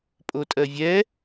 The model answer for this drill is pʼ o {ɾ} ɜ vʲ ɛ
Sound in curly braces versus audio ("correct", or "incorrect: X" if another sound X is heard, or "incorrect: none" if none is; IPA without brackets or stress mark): incorrect: tʼ